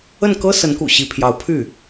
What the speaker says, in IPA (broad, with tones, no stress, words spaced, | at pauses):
ə˥˩nkɤ˥sə˧˥nkṵ˨˩ ɕi˧˥pʰjɑ˧˥ʊ̯ pʰy˥˩